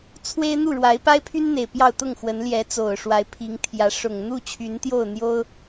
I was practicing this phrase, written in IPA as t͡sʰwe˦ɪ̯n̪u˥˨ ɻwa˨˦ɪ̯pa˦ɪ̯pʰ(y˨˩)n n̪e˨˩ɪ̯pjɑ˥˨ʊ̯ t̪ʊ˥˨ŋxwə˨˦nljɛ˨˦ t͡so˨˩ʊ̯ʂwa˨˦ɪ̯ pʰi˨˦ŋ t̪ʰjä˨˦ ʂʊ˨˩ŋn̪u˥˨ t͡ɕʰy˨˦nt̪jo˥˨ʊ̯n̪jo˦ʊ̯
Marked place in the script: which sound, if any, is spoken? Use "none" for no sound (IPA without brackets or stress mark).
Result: y˦